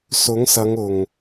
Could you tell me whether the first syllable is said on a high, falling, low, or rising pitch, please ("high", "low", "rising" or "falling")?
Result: rising